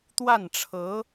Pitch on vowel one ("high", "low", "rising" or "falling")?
falling